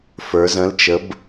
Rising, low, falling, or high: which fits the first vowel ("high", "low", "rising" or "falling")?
rising